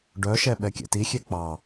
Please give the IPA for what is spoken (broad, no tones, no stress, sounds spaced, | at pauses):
ɖ œ ʃ ɛ ɓ ɛ kʲ ɛ̰ t i xʲ e k͡p ɑ